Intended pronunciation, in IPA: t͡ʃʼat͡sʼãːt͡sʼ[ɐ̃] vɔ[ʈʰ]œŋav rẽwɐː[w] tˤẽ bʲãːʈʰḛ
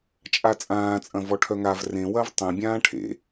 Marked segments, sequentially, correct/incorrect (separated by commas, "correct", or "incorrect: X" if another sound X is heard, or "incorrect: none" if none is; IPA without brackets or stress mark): correct, correct, incorrect: v